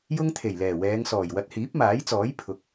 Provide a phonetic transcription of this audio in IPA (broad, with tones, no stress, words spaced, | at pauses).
jʊ˥ŋt̪ʰe˨˩j lɛː˨˩wɛː˨˧ŋsɔː˨˩j wɐ˧t̚ hiː˨˥p̚maː˨˥jt͡sɔː˨˥j pʰʊ˨k̚